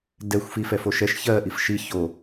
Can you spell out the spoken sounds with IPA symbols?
d ɛ xʷ f i f ɛ f o ʃ ɛ ʃ ç ɜ ʔ i f ʃ i ç o

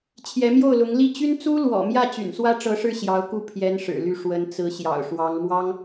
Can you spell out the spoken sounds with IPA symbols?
t͡ɕʰ j ɛ˧˥ m j o˥˩ ʊ̯ l ʊ˧˥ ŋ l i˥˩ t͡ɕ y˥ n t͡s u˥ l w ɔ̰˨˩ m j ä˥˩ t͡ɕ y̰˨˩ n s w ä˥ ʈ͡ʂ ɤ˧˥ ʂ ɻ̩˥˩ ɕ j ɑ˧˥ ʊ̯ k u˥˩ pʰ j ɛ˥ n ʂ ɻ̩˨˩ l y˥˩ ʂ w ə˧˥ n t͡s ɹ̩˧˥ ɕ j ɑ̰˨˩ ʊ̯ ʂ w ɑ˧˥ ŋ m w ɑ˥ ŋ

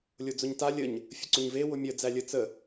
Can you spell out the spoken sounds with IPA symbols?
lʲ o d͡z ʊ ɲ t a lʲ ə ɲ | fʲ ə ǀ ʊ ɲ v e w ʊ mʲ ə d͡z æ lʲ ə t͡s ə

